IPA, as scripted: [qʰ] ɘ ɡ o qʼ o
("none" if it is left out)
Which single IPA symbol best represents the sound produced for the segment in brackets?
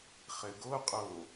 χ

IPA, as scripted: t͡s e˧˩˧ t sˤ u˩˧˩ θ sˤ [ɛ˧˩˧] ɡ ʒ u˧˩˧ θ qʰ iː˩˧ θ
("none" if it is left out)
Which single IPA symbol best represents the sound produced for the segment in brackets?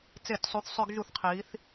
ø˧˩˧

